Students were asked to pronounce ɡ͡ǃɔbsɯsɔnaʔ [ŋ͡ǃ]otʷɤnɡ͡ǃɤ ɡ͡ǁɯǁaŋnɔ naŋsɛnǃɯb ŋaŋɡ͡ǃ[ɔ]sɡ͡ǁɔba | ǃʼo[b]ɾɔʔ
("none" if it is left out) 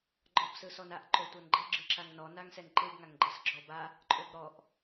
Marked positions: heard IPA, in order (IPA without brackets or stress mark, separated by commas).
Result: ǃ, ɤ, b